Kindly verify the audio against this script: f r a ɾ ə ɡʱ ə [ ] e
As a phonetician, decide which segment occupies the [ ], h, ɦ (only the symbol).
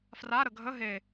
ɦ